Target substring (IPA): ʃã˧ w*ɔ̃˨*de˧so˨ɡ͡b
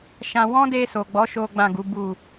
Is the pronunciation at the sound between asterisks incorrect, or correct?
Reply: incorrect